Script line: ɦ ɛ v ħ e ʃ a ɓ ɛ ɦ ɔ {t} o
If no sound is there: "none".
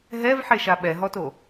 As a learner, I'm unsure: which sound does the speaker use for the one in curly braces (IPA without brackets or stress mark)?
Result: t